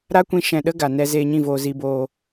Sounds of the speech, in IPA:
ɾ a˦ kʷ ĩ˧ ʃ ɛ̃˧ ɗ ə˦ ɡ a˨ n ɛ˧ z eː˧ ɲ ĩ˦˨ v oː˧ z i˧ b oː˧

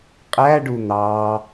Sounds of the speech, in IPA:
qʼ æ ɖ u n̪ ɑ

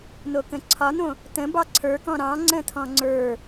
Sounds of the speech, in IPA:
n o k ə̃ ǀʰ ɒ n õ | t ə̃ b ɑ ǀʰ ə˞ k ɔ̃ ɾ ɑ̃ ŋ͡ǀ ə̃ tʰ ɔ̃ ŋ͡ǀ ə˞

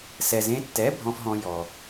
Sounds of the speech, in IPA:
s ɛ˨ z ẽ˧ tː ɛ˨˦ bʱ ɔ̃˧ f ɦ ɔ̃˧ j ɔ˨

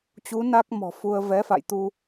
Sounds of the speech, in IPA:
t͡ɕ u˨˦ n a˦˥ k̚ m ɔ̤˨˩ f u˧ ə̯ v ɛ˨˦ f a̰˧˨ j t̪ u˧

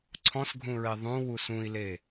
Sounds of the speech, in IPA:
ǀʰ ɔ̃ s ɡʱ ũ ɹ e ðˤ ũ w u s ũ i̯ l e

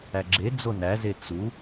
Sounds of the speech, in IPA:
æ ɡ͡ǁ e d͡z o n æ z e t͡s u

